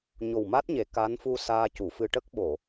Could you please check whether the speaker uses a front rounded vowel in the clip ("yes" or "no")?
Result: no